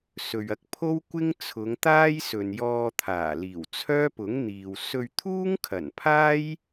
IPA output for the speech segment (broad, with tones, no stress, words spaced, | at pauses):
sɵ˨ɥɐ˧k̚ pʰo˥wkʷɪ˥ŋ t͡sʰʊ˨˧ŋt̪aː˥j sɵ˨njɔː˧ t̪ʰaː˨˩liː˨˩w t͡sʰœː˥pʊ˨˥ŋ n̪iː˨w sɵ˧ɥt̪ʰuː˥ŋkʰɐ˨˩npʰaː˥j